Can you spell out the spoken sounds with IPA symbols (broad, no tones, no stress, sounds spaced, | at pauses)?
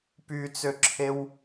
p y t͡s ø ǁʰ e w